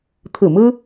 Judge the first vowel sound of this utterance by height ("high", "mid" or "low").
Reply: high